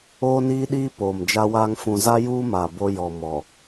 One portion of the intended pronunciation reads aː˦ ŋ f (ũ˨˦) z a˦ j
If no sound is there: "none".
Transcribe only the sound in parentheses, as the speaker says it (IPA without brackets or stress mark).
ũ˨